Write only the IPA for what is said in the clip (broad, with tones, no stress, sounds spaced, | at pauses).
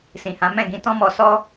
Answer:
s ĩ˨ h ã˨˦ m ɛ̃˦˨ ɡ ĩ˧ t ɔ̃˦ m ɔ˧ s ɔ˦